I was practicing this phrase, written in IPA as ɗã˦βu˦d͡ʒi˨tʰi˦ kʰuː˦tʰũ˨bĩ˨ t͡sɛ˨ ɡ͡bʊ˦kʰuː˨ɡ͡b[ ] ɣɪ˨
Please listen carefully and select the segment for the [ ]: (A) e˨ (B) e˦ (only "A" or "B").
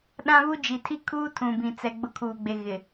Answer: A